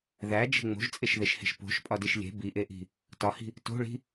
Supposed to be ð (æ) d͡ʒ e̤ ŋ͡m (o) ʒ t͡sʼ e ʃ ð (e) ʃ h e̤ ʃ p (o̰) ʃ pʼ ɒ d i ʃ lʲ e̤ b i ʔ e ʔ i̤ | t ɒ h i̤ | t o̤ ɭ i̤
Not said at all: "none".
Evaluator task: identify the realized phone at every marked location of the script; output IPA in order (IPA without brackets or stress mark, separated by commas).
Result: æ, o̤, e, o̤